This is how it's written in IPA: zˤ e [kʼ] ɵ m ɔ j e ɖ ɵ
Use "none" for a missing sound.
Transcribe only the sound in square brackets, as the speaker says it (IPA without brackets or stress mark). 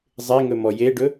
ŋ